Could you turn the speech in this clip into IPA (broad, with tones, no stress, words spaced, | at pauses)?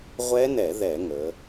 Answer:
ʁʷɛ˦˥nɛ˧˩˧ ðɛ˧˩˧ŋə˩˧